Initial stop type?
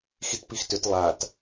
plain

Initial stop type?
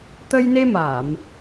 plain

